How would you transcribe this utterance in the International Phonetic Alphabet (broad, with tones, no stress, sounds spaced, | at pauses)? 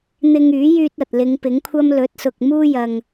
n̪ ɪ˧ ŋ yː˨˥ j yː˧ t̚ ɐ˨ t̚ l ɪ˨˧ ŋ p ɪ˨˥ ŋ kʷʰ ɐ˥ m l ɵ˨˥ t̚ s ʊ˨ k̚ m uː˥ j ɐ˧ ŋ